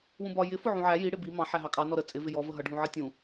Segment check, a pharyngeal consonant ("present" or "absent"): present